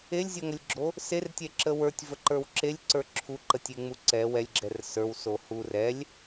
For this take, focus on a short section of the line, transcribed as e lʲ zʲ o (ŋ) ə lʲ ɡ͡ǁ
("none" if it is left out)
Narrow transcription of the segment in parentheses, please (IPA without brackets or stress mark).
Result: ŋ